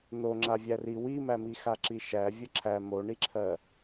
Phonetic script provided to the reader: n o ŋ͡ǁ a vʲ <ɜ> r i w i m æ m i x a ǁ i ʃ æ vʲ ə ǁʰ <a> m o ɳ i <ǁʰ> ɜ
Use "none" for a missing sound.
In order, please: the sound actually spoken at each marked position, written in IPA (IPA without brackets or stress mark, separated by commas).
æ, æ, ǁʰ